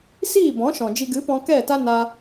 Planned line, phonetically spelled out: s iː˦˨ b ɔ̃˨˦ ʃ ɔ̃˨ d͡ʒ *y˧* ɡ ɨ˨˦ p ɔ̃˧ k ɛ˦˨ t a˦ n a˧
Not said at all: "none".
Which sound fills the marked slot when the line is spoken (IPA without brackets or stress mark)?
i˧